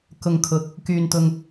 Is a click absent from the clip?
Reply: yes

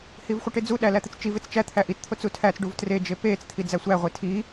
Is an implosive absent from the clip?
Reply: no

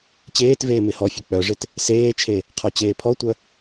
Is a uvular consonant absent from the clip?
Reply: no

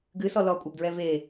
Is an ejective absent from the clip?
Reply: no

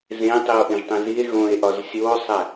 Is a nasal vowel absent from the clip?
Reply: no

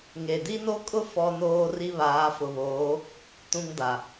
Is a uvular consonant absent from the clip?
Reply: yes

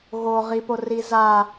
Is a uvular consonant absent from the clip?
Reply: no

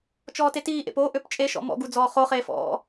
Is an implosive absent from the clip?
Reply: yes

